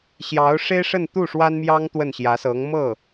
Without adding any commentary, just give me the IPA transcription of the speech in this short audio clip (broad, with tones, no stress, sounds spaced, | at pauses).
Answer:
ɕ j ɑ˧˥ ʊ̯ ʂ e˥ ɪ̯ ʂ ə˥˧ n t̪ u˥˩ ʂ w a˥ n m j ɑ˥ ŋ t̪ w ə˥˩ n ɕ j ä˧˥ s ɤ˧˥ ŋ m ɤ˥˩